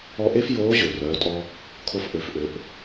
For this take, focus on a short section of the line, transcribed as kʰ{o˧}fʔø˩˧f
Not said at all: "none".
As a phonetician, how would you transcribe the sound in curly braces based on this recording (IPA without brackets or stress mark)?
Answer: o˧